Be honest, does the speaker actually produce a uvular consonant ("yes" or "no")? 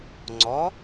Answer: no